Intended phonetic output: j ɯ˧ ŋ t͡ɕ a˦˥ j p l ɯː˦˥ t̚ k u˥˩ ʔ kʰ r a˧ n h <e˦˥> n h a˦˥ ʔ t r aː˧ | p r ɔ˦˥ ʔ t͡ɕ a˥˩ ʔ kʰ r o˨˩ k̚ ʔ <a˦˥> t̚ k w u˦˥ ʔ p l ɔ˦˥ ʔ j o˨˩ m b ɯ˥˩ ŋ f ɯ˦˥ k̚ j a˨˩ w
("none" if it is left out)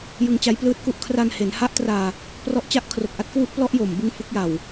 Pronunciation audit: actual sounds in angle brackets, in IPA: e˩˦, a˦˥

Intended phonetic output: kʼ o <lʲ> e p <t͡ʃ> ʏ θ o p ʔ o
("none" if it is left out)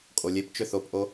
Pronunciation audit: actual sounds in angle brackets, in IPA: lʲ, t͡ʃ

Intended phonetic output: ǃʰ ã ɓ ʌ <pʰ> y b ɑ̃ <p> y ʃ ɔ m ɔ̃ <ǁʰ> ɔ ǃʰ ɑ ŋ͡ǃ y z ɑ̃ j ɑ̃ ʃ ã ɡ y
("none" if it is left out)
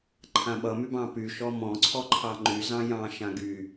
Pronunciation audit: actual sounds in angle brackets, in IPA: m, p, ǀʰ

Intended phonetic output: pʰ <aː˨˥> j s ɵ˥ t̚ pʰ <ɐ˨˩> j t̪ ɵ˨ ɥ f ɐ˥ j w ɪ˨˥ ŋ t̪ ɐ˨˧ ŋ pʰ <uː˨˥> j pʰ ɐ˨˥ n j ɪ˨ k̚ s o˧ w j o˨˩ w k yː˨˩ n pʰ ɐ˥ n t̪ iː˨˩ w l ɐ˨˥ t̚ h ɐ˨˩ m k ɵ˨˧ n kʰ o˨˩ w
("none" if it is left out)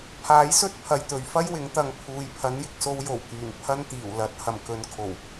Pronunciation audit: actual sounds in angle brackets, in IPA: aː˨˥, ɐ˨, uː˨

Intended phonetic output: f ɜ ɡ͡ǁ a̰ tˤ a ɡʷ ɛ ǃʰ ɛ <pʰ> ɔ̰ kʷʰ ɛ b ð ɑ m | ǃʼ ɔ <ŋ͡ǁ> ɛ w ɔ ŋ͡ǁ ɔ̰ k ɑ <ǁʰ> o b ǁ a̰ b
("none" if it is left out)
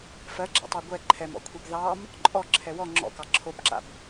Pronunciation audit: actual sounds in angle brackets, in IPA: m, ǁʰ, ǁʰ

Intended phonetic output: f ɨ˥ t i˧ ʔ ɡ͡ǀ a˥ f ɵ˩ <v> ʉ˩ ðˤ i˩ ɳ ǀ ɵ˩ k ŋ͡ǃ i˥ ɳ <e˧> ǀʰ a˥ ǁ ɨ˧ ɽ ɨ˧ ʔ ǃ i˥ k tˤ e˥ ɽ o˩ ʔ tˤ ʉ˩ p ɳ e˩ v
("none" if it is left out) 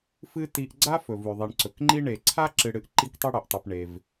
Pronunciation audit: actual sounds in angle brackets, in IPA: v, e˩

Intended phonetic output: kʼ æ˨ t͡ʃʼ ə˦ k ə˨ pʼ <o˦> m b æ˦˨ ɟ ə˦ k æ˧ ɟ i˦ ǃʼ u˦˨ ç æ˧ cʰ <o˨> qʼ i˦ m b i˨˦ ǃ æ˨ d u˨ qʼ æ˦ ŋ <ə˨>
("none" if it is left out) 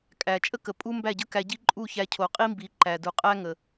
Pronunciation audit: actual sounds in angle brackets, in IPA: u˦, o˨, ə˨

